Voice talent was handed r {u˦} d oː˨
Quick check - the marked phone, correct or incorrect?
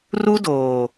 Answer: correct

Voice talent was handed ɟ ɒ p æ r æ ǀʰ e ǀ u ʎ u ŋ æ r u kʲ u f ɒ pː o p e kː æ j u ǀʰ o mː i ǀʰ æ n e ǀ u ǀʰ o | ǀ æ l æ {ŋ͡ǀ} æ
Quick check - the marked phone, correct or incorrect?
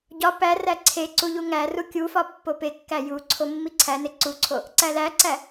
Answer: incorrect: ǀ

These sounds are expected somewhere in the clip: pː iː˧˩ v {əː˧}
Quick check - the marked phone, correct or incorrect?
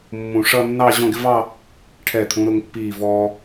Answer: incorrect: ɔː˧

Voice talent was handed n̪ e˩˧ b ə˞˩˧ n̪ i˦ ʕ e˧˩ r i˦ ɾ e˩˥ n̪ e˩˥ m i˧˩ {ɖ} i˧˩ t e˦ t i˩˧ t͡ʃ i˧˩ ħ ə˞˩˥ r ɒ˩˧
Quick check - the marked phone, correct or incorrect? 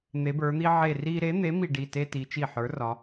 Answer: correct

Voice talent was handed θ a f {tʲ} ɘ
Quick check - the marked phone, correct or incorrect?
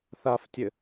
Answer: correct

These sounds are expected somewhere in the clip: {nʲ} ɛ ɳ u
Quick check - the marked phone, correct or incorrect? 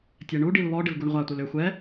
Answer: incorrect: tʲ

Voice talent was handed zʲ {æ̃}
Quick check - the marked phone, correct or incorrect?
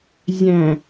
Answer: correct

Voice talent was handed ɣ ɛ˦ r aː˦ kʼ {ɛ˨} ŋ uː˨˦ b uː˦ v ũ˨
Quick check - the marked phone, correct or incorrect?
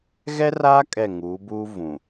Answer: incorrect: ɛ˦˨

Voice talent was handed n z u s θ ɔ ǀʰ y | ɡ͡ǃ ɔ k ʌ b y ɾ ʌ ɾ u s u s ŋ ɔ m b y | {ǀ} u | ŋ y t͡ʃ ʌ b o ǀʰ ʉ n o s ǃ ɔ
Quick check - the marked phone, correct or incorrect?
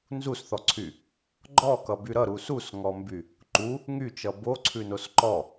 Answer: incorrect: ǃ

